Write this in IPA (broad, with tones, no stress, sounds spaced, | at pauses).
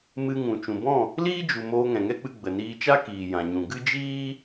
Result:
m ɨ˧ ŋ ũ˨ t͡ʃ ũ˨ b ɔ̃˦˨ | l iː˦ d͡ʒ u˨ m oː˧ ŋ ɛ̃˨ ŋ ɛ˦ k͡p ɨ˧ ɡ͡b ə˨ n iː˧ t͡ʃ a˦ k iː˨ j ã˨ ɲ ũ˨ ɡ ɨ˦ d͡ʒ iː˦